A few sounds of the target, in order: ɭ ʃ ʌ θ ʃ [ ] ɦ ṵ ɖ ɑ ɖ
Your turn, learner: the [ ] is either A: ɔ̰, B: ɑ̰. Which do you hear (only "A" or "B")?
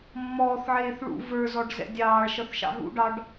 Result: B